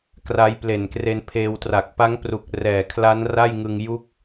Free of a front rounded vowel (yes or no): yes